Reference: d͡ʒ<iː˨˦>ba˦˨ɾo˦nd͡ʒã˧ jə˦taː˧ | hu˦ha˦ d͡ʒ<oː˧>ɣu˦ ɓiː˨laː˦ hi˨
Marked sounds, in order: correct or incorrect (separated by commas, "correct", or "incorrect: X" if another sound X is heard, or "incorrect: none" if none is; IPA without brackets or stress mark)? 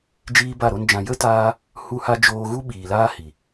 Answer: incorrect: iː˦, correct